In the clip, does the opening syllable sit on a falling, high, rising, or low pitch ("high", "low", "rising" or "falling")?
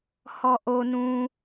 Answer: low